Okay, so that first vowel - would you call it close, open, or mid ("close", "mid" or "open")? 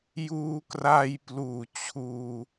close